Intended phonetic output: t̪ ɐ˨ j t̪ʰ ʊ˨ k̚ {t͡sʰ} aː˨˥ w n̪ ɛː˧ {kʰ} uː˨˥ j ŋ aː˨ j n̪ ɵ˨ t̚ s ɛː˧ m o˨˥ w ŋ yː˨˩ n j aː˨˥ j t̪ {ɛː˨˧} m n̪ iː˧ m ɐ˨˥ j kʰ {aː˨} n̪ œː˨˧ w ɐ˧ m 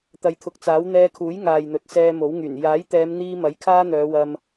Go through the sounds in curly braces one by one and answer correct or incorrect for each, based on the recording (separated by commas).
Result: incorrect, correct, correct, incorrect